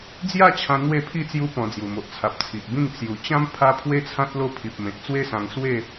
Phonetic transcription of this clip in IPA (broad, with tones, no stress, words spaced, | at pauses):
d͡zja˥˧t͡ɕʰã˧ n̪we˥˧pʰi˥˧ t͡sju˧ pɔ̃˧d͡zju˨˩mo˨ʔt͡sʰa˨p̚ t͡sʰi˨ʔbĩ˥˧ŋ t͡sju˨˩t͡ɕã˦m pʰa˦ pʰwe˦t͡sʰã˦t̚ lo˥˧pʰi˨p̚mẽ˨t̚ t͡swe˦sã˧ŋ swe˥˧